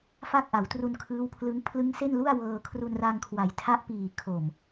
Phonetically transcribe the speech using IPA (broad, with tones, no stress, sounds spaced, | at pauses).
f a˥˩ k̚ ʔ a˩˦ w t r u˧ n kʰ ɯː˦˥ w pʰ l ɯ˦˥ ŋ pʰ l ɯ˦˥ ŋ s e˥˩ n l u˥˩ a̯ w ɤː˧ kʰ r u˧ n r a˧ ŋ kʰ w a˩˦ j tʰ a˦˥ ʔ p iː˨˩ kʰ o˨˩ m